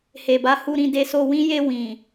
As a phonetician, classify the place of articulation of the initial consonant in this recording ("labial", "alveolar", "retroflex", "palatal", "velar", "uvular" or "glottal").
glottal